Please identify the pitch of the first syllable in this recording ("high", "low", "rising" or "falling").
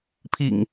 low